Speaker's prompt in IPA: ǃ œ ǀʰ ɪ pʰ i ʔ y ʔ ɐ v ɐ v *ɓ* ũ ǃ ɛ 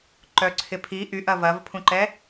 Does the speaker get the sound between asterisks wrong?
yes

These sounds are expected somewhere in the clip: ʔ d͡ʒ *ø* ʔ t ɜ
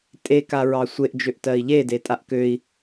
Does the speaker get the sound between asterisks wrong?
no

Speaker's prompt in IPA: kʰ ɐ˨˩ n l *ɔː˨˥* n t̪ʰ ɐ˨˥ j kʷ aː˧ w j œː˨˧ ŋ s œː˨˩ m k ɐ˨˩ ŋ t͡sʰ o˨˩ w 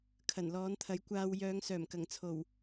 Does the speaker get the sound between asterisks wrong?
no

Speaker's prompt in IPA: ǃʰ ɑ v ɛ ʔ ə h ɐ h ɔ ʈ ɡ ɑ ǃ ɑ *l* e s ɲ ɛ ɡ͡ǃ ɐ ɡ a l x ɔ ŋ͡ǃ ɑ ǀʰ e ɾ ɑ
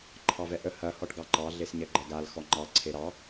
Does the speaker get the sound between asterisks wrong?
yes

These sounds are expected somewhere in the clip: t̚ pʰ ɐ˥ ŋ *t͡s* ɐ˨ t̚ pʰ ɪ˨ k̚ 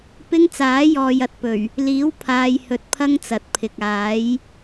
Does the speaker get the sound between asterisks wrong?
no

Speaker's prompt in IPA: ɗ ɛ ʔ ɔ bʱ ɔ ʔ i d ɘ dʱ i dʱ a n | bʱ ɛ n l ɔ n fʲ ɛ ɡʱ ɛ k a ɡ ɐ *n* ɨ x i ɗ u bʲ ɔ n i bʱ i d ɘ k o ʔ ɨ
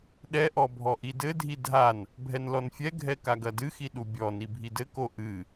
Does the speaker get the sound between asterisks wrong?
yes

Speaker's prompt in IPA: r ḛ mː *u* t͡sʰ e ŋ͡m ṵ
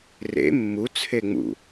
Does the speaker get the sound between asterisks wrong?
no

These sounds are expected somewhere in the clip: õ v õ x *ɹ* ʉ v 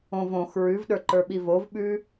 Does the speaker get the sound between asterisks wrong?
no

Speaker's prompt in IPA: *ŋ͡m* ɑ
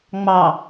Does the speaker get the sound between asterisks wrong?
no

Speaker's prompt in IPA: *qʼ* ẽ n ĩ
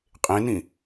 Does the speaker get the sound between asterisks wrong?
no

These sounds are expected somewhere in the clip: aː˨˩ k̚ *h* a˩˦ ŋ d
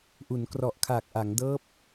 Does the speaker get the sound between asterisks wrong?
yes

